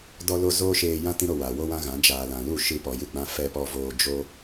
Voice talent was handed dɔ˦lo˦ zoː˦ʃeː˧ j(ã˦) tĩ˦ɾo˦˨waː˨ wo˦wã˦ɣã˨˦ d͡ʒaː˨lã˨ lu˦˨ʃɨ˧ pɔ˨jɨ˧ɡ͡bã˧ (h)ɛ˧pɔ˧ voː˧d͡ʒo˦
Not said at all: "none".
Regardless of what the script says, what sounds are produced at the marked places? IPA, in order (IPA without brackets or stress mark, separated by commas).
ã˦, f